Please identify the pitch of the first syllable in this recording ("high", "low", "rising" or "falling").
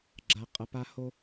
low